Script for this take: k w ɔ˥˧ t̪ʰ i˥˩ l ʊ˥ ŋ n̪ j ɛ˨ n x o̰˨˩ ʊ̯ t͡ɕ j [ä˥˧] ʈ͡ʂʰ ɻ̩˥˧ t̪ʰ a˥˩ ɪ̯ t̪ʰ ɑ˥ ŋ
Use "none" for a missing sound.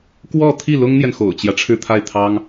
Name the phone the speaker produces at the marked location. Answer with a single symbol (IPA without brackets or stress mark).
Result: ä˦